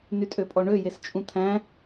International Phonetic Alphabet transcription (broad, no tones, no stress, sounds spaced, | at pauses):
n y tʼ ø pʼ ɔ ɳ ø j e s t͡ʃʼ ũ t̪ʰ æ̃